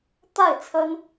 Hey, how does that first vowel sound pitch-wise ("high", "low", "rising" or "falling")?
falling